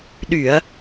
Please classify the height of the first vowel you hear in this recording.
high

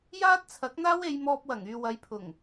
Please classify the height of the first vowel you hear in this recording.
low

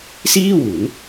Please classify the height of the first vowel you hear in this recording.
high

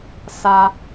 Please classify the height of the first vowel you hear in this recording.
low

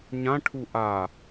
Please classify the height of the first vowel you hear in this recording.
low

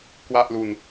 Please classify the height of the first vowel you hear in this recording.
low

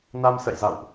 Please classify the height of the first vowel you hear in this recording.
low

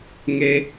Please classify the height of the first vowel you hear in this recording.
mid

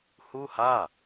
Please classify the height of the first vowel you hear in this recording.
high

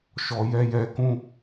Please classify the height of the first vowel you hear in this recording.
mid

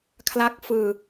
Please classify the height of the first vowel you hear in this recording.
low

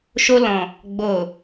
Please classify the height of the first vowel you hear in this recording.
mid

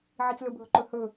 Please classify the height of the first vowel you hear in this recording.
high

